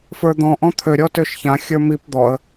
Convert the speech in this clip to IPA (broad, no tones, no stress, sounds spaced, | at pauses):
f ə˞ d̪ ɔ̃ ʔ ɔ̃ t̪ʰ ø ɾʲ ɔ t ø ʃ ç ã xʲ ə˞ m i p d̪ ɔ ə̯